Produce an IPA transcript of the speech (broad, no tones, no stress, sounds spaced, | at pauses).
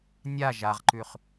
nʲ a ʒ a ʁ ǃ ʉ χ